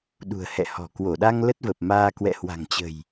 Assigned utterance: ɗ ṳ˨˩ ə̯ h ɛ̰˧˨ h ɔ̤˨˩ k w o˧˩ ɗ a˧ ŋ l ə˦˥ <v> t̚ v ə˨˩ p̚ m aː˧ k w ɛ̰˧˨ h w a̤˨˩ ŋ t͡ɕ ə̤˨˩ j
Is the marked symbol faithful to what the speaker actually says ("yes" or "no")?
no